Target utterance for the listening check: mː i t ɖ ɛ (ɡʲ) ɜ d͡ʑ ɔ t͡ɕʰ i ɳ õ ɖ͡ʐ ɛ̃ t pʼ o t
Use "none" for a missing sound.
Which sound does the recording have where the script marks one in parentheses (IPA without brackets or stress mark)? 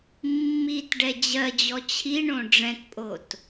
d͡ʑ